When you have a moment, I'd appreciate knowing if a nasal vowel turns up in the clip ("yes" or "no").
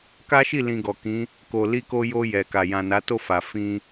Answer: yes